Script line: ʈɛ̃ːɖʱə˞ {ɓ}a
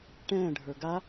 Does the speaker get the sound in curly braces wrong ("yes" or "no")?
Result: yes